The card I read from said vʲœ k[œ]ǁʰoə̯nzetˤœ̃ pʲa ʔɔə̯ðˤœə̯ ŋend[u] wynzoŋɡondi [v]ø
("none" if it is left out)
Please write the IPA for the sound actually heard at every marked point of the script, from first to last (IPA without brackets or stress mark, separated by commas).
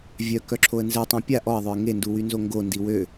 œ, u, w